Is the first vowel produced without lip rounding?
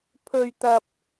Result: no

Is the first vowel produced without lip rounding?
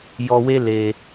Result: no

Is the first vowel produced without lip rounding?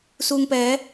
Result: no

